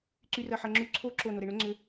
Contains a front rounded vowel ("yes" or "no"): yes